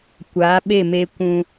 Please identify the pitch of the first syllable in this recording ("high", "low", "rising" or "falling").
rising